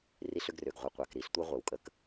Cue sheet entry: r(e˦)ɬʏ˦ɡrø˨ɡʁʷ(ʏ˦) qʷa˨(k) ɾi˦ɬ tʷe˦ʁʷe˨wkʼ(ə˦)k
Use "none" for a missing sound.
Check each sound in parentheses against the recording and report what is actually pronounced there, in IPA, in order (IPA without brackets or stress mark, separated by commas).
i˦, ə˦, k, ə˦